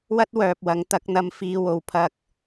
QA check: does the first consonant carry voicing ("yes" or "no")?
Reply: yes